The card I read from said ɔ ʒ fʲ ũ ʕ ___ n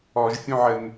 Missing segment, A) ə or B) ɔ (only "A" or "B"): A